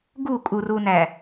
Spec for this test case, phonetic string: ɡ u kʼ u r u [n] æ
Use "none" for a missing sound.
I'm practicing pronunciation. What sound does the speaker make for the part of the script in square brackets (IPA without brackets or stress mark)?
n